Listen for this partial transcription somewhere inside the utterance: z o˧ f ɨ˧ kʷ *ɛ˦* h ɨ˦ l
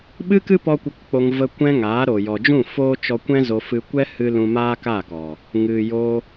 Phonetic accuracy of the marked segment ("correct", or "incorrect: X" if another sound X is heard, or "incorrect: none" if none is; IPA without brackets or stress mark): correct